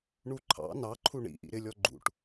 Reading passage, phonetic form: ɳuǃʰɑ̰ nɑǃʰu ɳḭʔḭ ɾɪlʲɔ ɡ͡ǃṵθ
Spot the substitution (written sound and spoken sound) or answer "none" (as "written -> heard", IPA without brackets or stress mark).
θ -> ʈ